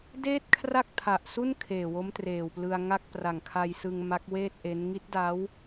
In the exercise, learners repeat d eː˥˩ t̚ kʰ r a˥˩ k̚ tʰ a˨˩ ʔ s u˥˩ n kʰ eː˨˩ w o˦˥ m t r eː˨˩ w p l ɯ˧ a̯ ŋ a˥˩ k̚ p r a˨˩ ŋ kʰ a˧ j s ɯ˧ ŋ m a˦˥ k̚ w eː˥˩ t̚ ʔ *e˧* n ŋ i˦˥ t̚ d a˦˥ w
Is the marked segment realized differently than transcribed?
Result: yes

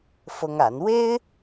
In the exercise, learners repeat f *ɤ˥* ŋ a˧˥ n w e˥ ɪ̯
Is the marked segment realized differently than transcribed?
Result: no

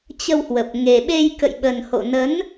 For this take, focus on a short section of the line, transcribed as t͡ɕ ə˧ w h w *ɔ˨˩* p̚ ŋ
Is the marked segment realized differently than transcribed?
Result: yes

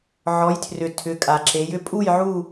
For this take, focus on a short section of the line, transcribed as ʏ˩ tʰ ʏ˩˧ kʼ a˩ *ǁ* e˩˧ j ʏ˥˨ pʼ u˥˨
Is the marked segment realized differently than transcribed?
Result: no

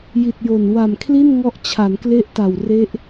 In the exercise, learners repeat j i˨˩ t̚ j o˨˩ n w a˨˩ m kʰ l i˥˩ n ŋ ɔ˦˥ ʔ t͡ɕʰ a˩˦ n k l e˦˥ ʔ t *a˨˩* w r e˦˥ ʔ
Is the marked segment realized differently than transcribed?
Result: no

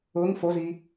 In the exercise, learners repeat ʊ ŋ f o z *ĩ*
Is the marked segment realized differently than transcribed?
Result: yes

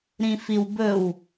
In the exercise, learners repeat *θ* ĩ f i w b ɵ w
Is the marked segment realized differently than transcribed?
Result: yes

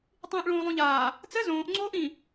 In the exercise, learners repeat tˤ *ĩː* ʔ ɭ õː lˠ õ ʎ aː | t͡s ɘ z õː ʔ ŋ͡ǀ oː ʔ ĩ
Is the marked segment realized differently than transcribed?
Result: no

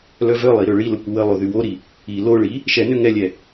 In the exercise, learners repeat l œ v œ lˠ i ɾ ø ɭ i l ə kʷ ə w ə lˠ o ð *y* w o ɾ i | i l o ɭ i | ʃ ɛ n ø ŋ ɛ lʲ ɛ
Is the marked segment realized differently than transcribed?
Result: no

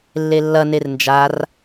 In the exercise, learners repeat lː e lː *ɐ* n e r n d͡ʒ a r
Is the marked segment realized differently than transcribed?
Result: no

